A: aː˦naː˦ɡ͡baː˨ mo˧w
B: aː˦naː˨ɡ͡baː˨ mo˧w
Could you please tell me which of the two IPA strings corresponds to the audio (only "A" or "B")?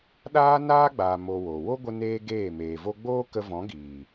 A